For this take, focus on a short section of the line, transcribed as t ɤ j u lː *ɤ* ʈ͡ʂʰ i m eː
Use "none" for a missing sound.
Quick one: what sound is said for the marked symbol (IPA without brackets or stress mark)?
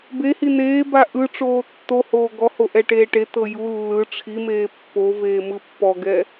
ɯ